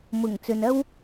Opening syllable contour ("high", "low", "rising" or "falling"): low